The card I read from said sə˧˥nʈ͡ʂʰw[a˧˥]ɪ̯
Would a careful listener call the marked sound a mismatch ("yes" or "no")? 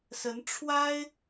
yes